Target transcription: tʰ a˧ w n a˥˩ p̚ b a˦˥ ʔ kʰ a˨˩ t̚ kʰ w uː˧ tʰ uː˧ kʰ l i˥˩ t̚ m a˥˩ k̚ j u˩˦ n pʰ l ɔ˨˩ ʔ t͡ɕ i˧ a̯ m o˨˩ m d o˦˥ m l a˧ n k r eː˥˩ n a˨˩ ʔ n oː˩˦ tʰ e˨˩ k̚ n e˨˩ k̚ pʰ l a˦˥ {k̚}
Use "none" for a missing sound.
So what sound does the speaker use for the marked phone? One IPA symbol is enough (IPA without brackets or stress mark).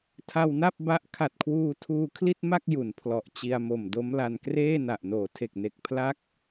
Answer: k̚